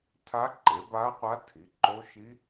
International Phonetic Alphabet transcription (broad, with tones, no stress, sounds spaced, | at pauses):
tʰ a˦˥ ǃ e˩˥ b a˦˥ qʷ a˦˥ tʰ i˩˥ ǃ o˦˥ ʃ i˦˥